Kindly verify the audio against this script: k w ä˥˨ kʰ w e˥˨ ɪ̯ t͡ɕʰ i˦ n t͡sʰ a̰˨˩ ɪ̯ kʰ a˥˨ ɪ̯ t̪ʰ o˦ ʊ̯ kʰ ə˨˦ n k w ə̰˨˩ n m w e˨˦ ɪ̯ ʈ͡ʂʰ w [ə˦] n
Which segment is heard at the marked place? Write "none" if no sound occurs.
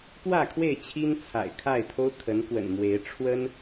ə˦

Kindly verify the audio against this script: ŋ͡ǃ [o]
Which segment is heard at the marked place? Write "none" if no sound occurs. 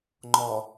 ɔ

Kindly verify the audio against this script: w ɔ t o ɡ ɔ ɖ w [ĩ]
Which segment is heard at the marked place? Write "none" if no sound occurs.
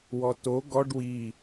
i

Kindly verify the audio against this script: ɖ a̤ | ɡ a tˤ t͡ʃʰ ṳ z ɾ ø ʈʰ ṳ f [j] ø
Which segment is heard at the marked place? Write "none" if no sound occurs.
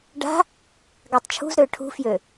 j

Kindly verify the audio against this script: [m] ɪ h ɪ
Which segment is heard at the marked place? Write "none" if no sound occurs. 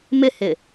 m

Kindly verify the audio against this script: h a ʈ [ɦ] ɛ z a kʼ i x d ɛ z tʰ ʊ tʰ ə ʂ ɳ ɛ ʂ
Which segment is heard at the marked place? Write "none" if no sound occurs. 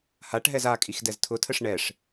ɦ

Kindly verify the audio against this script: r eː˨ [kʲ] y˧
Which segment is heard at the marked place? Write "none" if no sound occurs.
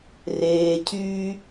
cʰ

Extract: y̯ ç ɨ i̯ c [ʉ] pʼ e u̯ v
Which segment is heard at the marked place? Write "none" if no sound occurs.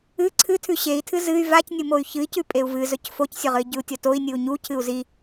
ʉ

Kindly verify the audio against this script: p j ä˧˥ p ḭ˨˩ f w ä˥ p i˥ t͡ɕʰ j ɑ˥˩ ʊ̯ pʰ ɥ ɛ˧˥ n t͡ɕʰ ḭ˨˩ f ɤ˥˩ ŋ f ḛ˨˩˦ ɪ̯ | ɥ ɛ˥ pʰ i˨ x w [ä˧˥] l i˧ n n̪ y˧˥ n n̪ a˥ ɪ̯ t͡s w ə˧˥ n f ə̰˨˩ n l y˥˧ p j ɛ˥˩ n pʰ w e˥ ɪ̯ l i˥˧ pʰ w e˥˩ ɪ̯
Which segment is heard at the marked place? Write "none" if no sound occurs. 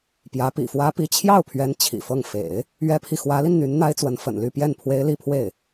ä˧˥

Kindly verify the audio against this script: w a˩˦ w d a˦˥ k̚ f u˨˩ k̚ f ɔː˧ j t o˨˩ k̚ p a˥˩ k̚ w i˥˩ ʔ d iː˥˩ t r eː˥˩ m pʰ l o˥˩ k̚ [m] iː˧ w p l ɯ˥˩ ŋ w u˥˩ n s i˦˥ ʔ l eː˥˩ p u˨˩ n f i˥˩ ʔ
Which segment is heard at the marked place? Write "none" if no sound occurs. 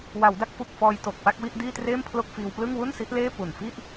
f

